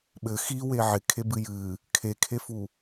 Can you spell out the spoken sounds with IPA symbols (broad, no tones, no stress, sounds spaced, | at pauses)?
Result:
ɓ ɘ x i w e ʕ ɪ kʰ e b ɨ j ɨ | kʰ e kʰ e f u